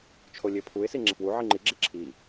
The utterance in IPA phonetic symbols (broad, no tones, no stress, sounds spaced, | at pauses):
t͡ʃʰ o lʲ e pʰ u ɪ̯ s i ŋ͡ǁ e f w u ʕ i ŋ͡ǃ i ɡ͡ǁ e ǁʰ i